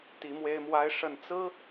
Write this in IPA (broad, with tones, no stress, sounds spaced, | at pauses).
t̪ i˧˥ m w e˥ ɪ̯ m w a˥ ɪ̯ ʂ ə˥˩ n t͡s ɹ̩˥